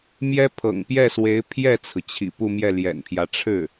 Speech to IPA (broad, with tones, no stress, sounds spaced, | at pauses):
m j ɛ˥ pʰ ɤ̰˨˩ ŋ p j ɛ˥˩ s w e˧˥ ɪ̯ pʰ j ɛ˥˩ t͡sʰ ɹ̩˩ t͡ɕʰ ḭ˨˩ p u˥˧ m j ɛ˥˩ l j ɛ̰˨˩ n pʰ j ä˧˥ ʈ͡ʂʰ ɻ̩˥˩